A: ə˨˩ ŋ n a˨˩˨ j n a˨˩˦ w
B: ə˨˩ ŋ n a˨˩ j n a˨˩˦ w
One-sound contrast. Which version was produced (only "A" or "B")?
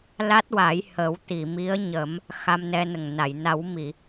A